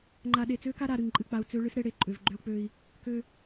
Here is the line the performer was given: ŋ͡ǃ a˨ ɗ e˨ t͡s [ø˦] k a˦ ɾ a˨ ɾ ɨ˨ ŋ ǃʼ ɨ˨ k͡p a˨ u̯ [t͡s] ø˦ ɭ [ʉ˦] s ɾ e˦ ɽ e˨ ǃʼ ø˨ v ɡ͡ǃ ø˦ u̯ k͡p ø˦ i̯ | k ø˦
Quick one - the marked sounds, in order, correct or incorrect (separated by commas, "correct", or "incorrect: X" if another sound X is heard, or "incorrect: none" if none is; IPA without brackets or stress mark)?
correct, correct, incorrect: ɨ˦